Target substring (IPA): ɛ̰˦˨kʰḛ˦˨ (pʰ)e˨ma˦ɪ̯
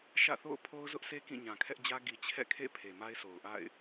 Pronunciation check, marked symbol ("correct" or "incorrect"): correct